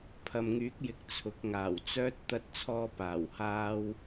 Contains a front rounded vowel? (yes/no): yes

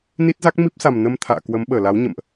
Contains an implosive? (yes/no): yes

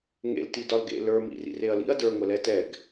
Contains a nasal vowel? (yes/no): no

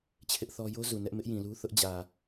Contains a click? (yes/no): no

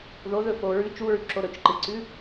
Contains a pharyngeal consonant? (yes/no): no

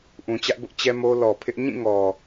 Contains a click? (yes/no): no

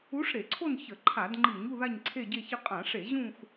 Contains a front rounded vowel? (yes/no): no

